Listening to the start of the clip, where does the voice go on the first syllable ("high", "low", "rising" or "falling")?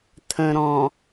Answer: low